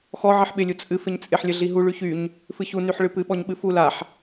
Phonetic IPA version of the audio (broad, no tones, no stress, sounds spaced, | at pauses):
x ɔ ʕ ɪ ħ ɓ ɪ lʲ u t͡sʼ ɨ f ɪ ɲ t͡sʼ ɪ ħ lʲ ə ɮ i ɦ u ɭ y ç y ɲ | f ɨ ç u n y ħ ɭ ɨ p ɨ ɓ ɔ ɲ ɓ ɨ f u l a ħ